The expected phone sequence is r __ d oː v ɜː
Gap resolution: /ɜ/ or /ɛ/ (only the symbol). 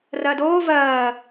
ɜ